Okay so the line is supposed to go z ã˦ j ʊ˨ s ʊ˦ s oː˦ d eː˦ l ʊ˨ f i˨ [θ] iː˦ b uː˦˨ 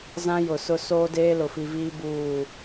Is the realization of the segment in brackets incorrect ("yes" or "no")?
yes